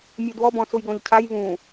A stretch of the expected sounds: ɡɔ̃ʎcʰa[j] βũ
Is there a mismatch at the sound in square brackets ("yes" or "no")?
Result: no